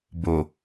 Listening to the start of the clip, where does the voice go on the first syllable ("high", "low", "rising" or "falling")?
low